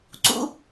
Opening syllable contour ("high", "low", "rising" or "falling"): high